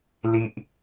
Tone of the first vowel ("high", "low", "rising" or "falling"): high